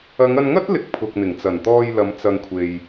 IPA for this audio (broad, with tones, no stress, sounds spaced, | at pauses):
ɐ˨˧ ŋ ɐ˧ n ŋ ɐ˥ t̚ l ɪ˨ k̚ pʰ ʊ˨ k̚ n̪ ɪ˨˩ ŋ t͡s ɐ˨˩ n t̪ ɔː˧ j l ɐ˨˧ m t͡s ɐ˨ ŋ kʷʰ e˨ j